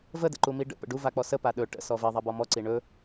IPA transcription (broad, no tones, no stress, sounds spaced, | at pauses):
v ə d ə̰ ǃ u m i ɖ ə̰ p ə̰ ɖ u v a k͡p ɔ s ə p a ɗ ɵ ʈ ə̰ s ɔ v i ðˤ a b ɔ m ɔ ǀ i ɳ ɵ